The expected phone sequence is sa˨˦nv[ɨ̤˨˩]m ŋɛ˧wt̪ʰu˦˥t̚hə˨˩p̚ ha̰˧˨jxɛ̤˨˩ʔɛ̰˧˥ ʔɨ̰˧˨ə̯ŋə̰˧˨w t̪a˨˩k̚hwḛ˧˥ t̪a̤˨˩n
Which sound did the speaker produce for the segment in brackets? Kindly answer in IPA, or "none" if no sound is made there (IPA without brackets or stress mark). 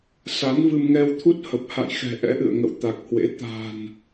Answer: ɨ˧